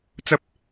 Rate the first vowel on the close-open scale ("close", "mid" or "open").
open